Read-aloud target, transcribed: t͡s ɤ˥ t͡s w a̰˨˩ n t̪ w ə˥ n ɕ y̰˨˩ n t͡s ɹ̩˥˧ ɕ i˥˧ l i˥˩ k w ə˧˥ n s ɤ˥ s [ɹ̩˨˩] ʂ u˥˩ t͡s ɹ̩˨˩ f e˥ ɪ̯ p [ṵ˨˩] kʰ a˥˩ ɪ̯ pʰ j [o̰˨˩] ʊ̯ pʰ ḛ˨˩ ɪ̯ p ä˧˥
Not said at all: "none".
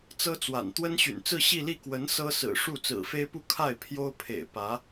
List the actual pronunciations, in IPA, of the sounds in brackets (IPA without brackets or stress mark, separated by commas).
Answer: ɹ̩˨˩, u˥˧, o˥